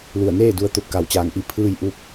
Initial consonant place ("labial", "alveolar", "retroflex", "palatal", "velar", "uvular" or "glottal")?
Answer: alveolar